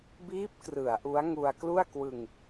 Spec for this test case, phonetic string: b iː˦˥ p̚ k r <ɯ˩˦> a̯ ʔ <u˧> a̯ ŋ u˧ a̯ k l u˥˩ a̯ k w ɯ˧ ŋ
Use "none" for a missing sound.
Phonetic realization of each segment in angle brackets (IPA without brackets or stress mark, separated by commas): ɯ˩˦, u˦˥